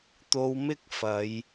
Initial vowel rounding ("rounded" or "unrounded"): rounded